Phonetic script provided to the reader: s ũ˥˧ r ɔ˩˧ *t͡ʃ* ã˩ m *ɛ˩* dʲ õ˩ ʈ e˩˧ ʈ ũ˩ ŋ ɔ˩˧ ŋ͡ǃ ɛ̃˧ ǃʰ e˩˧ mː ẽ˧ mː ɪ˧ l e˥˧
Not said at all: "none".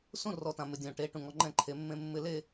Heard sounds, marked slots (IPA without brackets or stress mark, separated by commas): t, ɪ˩